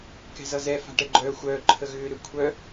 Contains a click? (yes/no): yes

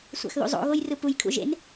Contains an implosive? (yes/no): no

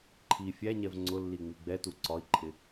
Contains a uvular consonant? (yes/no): no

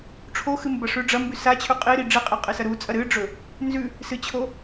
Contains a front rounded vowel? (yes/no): no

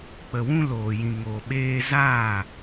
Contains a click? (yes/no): no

